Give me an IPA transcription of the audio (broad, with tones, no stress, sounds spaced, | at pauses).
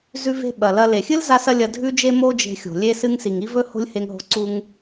z ʉ˧ v e̤˧ ɓ ɐ˩ l ɐ˧ l e˩ xʲ ɨ˥ l z a˥ s ɐ˥ lʲ ɐ˧ dʱ ʉ˥ d͡ʒ e˥ m o˥ d͡ʒ e̤˧ xʲ o̤˩ lʲ e˧ s ɨ˧ ŋ s i˩ ŋ i˥ v ɵ˥ h o̤˥ lʲ h e˧ ŋ ɦ o̤˧ ǀ u˧ ŋ